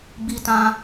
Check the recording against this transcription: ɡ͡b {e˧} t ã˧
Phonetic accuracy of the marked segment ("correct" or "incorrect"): incorrect